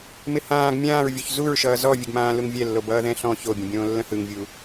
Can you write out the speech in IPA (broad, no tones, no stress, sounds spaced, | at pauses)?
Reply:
m ɪ h ãː ɡ mʲ ãː ɹ vʲ o ç z u ɹ ʃ ʌː z ɔ vʲ ə ɡ m ãː l u ŋ vʲ ɛ lː o b ʌː ð ɛ̃ ɬ ɔ̃ ç o bʲ ə̃ bʲ õː lː ə̃ h ɯ ŋ vʲ u